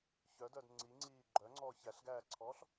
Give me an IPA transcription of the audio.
ç œ d œ d ŋ͡ǀ i ŋ͡ǀ iː ɡ͡ǃ œ ŋ͡ǀ ɔː ç æ ɬ ɡ æː ǀʰ ɔː ɬ

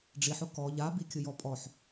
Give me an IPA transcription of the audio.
ɖ͡ʐ i ħ ʊ k ɔ ʎ a b i kʲ ʊ j ɔ pʼ ɔ ħ

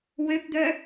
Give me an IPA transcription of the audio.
w ø p d̪ œ

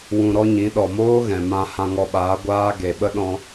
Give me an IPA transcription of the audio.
w ũ˧ ɾ ɔ˦ ɲ ĩ˨˦ ɗ ɔ˨ m oː˦ ɣ ɛ̃˨ m ã˧ h ã˧ ŋ ɔ˧ ɓ aː˨˦ ɡʷ aː˦ ɡ e˨ ɓ ə˦ ɗ ɔ̃˧

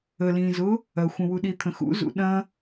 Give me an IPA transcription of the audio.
ə l ĩː z ʊ | ɐ xʷ ə̃ w u ɗ i t̪ʰ ə̃ x ṵ z ṵ ɗ ɐ̃

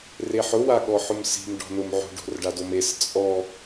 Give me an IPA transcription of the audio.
r e ħ ʊ w a ɠ ɔ ħ ʊ m s i̤ m ɖ ɔ̤ n ʊ m ʕ o̤ ɖ o̤ r ɖ a d o m e s t͡sʼ ɔ

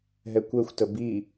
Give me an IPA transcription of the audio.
ɦ ɛ kʷ ɛ xʷ t ə b i

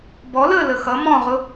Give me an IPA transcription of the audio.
b ɔ l əː l ə x ʌ m ɔ̃ ʁ ʊ

